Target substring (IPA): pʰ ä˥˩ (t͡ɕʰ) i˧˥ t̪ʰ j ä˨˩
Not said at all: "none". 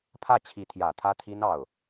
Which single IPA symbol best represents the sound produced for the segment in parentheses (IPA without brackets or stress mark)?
t͡ɕʰ